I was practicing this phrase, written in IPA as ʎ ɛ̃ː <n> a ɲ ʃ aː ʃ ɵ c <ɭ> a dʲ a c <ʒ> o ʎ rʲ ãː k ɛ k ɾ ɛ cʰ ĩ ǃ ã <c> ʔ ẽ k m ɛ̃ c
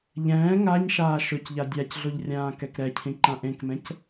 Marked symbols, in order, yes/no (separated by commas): no, no, no, no